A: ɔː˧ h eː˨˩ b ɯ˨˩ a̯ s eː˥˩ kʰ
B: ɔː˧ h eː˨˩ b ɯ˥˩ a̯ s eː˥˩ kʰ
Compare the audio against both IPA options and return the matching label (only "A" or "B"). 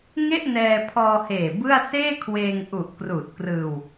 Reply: B